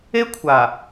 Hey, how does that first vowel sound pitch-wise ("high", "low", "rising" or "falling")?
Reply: high